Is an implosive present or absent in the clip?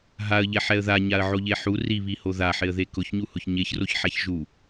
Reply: absent